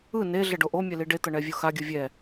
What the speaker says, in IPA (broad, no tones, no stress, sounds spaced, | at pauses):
ɯ n e ɮ ɛ ɖ o ʔ o mʲ ɛ l i ɖ e t̪ ʌ ɳ ɛ vʲ o x a ɡʲ ɯ vʲ ɛ